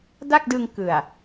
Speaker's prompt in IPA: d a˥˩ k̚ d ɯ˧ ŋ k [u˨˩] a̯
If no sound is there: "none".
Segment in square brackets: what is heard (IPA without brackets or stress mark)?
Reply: ɯ˨˩